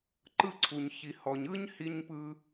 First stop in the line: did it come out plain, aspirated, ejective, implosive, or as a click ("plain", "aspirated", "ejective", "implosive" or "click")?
click